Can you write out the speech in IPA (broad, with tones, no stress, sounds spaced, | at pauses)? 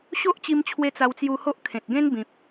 ɕ o˦ ʔ t͡ɕ i˧ m t͡ɕʰ w e˧ t͡s a˧ w t͡s j u˧ h o˦ ʔ kʰ ẽ˨ t̚ ɡ ẽ˦ n b ĩ˨ p̚